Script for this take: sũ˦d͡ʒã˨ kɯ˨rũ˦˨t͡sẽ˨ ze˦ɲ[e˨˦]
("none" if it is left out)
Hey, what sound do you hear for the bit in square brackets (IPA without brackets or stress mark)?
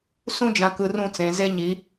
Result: i˨˦